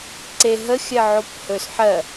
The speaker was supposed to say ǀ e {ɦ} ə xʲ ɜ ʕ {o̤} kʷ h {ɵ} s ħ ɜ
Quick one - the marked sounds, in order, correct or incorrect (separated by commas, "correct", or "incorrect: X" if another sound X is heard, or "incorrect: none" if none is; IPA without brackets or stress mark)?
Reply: correct, incorrect: o, correct